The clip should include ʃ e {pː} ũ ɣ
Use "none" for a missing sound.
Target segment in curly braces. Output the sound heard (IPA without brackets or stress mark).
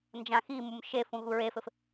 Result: f